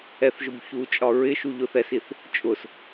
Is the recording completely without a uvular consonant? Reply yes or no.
yes